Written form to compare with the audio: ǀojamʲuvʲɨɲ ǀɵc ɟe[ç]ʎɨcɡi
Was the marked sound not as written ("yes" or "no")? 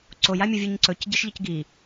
yes